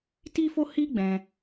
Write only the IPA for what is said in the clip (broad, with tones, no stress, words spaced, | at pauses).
ti˦fo˦hi˦ ɡ͡bɛ̃˧